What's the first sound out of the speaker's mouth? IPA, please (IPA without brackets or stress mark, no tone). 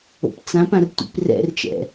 o̰